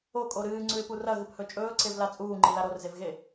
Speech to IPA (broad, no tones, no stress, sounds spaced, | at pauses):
o kʼ o ɾ ɨː ŋ͡ǀ ʉ ɪ̯ p u r ɐ ɣ ɨ p h ɵ t͡ʃʼ ɵː ǀ e v l a t͡sʼ uː ŋ͡ǃ i l a ɾ o r z e v ɣ e